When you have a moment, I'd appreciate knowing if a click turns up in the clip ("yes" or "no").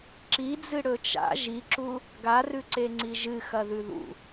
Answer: yes